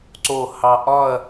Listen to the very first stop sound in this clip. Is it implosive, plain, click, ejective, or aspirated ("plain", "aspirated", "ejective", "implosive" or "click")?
click